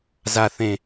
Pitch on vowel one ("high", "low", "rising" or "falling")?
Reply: low